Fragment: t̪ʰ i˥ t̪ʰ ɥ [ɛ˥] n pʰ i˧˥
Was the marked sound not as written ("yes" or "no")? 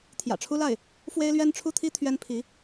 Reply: no